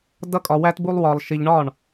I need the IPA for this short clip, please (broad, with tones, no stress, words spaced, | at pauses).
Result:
dʌ˦kʼɒ˧wæ˦t bu˦lˠwɒ˧lˠʃi˧ʎ ɳɒ˦˨ɳ